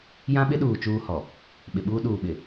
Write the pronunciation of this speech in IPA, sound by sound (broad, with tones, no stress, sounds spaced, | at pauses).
j ã˦ ɓ ɪ˦ ɗ uː˨ t͡ʃ uː˦ h ɔ˨ | ɓ ɪ˨ ɓ uː˦ ɗ uː˨ ɓ ɪ˨